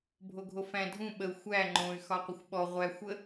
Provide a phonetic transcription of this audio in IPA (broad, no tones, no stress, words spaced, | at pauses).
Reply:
bʱoɡʱofæ̃ dʱũ ɓəu̯ xʷæ ŋ͡ǃõy̯xɒ qʷəxʷɓɔ ʁʷæ xʷə